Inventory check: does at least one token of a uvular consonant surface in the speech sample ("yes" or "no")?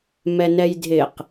yes